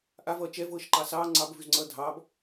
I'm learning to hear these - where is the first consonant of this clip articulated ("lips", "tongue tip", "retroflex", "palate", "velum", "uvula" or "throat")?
throat